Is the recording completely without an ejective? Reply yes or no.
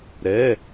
yes